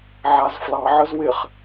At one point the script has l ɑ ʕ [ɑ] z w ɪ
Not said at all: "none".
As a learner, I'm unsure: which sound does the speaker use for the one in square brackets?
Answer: ə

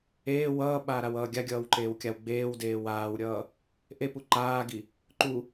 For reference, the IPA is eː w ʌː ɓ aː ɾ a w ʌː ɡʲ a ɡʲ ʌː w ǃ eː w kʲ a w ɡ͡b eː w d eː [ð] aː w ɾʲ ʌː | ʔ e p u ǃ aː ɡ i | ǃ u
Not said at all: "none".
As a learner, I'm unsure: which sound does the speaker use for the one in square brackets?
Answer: w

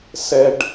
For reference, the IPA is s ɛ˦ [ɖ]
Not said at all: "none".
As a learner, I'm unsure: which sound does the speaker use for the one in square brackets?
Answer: ɖ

